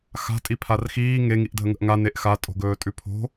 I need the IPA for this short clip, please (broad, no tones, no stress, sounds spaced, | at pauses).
x a̤ tʼ i pʰ a r x iː ŋ e ŋ i ʔ dʱ ə ŋ ə̤ ʔ ŋ a n e ʔ x a tʼ o̤ ɡ ɵː tʼ ʉ pʰ o̤